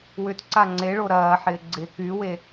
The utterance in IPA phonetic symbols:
wʏtǀa ŋ͡ǀeɭo ɾɐːħɪː ɡ͡ǀɪ kywe

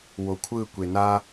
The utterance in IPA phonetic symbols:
wokʷʰɯkʷe na

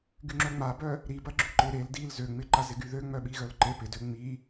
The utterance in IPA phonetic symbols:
ɡyŋ͡ǁœŋ͡mabœ | ɾi bɐɡ͡ǁyǃɪ ɾel dil zøŋ͡mɪ ǃazɪɡyðø ŋ͡mœɓiɣœlǃe pɪdø ŋ͡mi

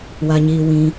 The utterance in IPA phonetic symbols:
wa˧ɲiː˧ wĩ˧

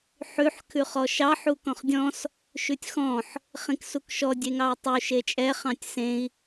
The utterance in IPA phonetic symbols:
ħʉħ kʰʉχɔʃɑ ħukɔ̃χdʲɔ̃s | ʃʉtʲxɔ̃ħ | χĩksukʃɔ dʲeŋɑu̯tˤu ʃet͡ʃʼɛ χɑ̃tʲsẽi̯

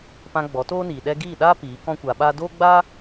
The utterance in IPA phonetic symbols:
pã˧ ɡ͡bɔ˨˦toː˦niː˨ɗɛ˦ ɡiː˦˨ɗaː˦ piː˨˦ kɔ̃˦kʷaː˧ɓaː˦ doː˦ɡ͡baː˦

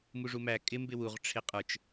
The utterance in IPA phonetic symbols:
muʐumæ kʼɪ mbɪwuʁ ʈ͡ʂʰɪqʼə˞t͡ʃ

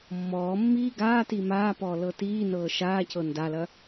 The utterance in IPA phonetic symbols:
mːɔːmːiː ɡaːti maːpɔːlɤ tiːnɤː ʃaːcɤ ndalɐ

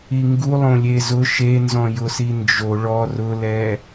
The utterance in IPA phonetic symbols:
iŋɡu lˠõlʲezʊ ʃenzɔ̃jʊsi nd͡ʒo ɭɔ rʊlɛ

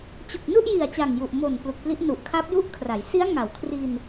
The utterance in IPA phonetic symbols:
t͡ɕu˨˩k̚nu˥˩ʔji˨˩a̯ t͡ɕa˨˩ŋju˨˩ʔ mo˨˩n plu˨˩k̚pli˦˥ʔ nu˨˩ʔkʰa˦˥p̚ ju˥˩ʔkʰra˩˦j si˦˥a̯ŋa˩˦wkʰri˧n

